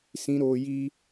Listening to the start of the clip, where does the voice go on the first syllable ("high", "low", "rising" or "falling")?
high